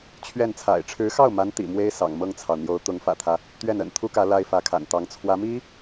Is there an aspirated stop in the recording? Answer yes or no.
yes